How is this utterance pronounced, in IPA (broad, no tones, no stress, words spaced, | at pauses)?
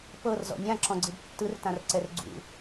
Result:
pɤrzɔ̰ nʲãǁɔ̃ɡ͡ǀɯb tːɯrtãrǀɛr ɡ͡ǀṵ